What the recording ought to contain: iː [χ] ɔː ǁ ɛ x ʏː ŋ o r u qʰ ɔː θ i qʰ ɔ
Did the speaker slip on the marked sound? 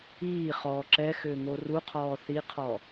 no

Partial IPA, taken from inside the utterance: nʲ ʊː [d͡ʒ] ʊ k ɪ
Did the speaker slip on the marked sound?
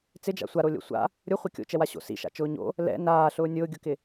yes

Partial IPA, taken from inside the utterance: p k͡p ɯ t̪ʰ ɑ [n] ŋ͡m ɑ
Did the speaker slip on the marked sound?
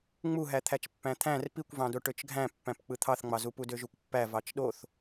yes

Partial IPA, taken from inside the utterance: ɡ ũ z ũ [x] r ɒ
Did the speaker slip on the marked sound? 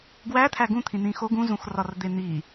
no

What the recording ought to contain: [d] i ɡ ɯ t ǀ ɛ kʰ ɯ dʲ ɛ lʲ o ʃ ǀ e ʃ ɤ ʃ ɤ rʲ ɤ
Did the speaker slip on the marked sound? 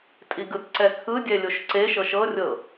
yes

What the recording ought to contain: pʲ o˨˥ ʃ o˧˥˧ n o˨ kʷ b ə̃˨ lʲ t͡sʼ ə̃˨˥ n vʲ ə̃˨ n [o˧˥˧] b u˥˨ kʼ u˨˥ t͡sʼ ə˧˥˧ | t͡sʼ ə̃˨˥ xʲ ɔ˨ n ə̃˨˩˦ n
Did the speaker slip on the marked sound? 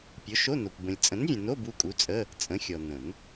no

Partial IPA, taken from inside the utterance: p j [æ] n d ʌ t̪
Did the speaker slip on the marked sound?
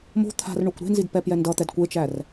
yes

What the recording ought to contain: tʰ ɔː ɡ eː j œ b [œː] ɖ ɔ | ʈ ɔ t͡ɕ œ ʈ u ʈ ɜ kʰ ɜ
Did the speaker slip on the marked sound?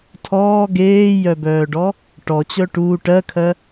no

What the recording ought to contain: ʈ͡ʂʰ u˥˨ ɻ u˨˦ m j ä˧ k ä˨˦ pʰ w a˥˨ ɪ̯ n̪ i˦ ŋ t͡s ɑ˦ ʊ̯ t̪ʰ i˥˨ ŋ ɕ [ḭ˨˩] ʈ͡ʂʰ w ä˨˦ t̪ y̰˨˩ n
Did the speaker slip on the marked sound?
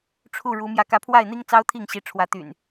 yes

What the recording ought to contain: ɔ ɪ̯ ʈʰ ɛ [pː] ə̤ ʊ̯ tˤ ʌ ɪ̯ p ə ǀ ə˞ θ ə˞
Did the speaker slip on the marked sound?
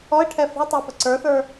yes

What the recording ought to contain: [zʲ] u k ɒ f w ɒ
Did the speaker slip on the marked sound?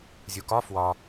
no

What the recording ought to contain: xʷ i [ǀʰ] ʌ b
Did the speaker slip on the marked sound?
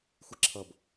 yes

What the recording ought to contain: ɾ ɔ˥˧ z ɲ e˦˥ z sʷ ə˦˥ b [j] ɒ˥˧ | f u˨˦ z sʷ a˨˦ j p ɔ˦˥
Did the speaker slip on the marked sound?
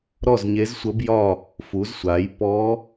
no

